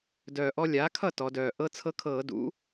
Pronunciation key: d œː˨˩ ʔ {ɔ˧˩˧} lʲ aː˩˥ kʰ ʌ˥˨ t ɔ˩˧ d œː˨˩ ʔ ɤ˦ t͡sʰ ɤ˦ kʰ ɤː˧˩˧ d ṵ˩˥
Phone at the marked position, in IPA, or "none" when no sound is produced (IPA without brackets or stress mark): ɔ˦